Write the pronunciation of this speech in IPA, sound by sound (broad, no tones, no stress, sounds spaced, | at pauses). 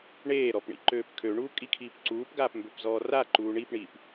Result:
ɳ eː ɾ ɔ p ɳ ḭ ǃ øː p kʰ ø ɳ uː kʼ i kʰ iː p ǀ uː p ɡ aː p m b ø p z ɔː r a ǃ uː ɳ i p ɳ iː p